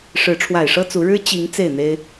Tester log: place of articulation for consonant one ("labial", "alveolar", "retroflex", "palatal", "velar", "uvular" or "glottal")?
retroflex